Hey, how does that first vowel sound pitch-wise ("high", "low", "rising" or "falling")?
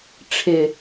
low